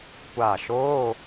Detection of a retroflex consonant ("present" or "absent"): absent